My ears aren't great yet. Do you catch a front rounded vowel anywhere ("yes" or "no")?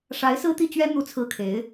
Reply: no